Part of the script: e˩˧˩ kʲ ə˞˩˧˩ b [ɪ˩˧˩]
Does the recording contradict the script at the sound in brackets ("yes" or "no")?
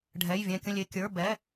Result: yes